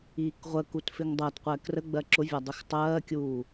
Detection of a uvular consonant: present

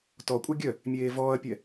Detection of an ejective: present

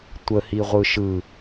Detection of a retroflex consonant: absent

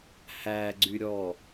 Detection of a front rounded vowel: present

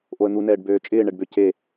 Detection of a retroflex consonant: present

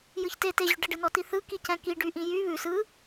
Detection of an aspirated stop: absent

